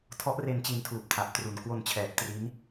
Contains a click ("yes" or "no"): no